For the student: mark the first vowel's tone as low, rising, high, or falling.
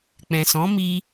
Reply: low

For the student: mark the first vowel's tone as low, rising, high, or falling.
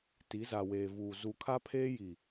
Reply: rising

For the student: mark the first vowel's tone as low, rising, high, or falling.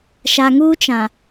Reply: low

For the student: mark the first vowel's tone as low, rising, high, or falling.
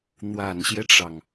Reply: low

